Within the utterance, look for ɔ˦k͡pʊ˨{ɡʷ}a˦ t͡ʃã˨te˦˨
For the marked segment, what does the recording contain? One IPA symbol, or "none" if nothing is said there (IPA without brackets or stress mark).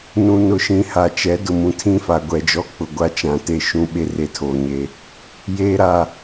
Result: ɡʷ